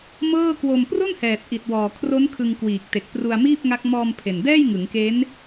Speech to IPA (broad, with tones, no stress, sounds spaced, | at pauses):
m ɤː˥˩ k w o˧ m p r o˥˩ n h ɛː˨˩ t̚ ʔ i˨˩ t̚ w ɔː˨˩ kʰ r o˦˥ n kʰ ɯ˧ ŋ k w iː˨˩ k̚ t e˨˩ k̚ p r u˧ a̯ m iː˥˩ p̚ ŋ a˦˥ k̚ m ɔː˧ m pʰ e˨˩ n d ɛː˥˩ j ŋ ɯ˩˦ ŋ k e˦˥ n